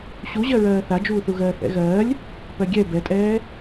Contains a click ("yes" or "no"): no